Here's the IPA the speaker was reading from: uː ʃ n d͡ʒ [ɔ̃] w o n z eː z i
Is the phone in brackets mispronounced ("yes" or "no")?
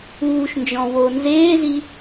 no